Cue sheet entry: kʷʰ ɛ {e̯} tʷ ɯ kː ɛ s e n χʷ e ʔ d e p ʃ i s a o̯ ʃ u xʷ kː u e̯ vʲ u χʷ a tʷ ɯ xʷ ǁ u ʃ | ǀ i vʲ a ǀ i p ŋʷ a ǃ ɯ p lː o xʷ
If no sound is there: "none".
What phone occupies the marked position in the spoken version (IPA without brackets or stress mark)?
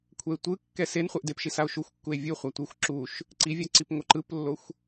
e̯